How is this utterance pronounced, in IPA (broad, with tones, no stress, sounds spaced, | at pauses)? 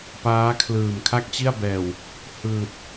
p aː˦˥ kʰ l ɯː˨˩ m kʰ a˥˩ k̚ t͡ɕ i˥˩ a̯ b ɛː˨˩ w | h ɯː˨˩ t̚